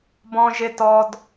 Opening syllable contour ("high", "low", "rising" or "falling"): high